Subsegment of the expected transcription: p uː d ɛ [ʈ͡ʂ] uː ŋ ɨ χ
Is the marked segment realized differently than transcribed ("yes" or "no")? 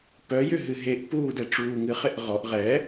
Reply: no